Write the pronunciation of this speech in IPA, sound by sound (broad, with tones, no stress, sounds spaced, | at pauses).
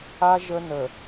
a˦ ʒ ə˦ n ə˨